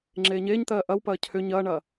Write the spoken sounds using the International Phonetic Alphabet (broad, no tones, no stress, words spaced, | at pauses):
ŋ͡ǁeːɲeːɲt̪ɜː ʔɐwpɐː cʰʏ ɲɐːɳɐ